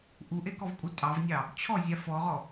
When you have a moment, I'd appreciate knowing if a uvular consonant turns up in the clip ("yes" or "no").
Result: yes